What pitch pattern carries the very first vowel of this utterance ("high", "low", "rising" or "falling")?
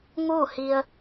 falling